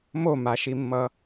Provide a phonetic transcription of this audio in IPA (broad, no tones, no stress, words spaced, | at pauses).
momaʃimːʌ